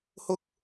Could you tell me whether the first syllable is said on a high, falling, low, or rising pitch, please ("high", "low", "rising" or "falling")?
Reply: high